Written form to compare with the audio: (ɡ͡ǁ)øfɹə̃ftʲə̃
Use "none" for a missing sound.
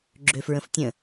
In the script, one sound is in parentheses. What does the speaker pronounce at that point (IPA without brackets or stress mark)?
ɡ͡ǁ